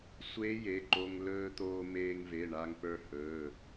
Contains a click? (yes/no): yes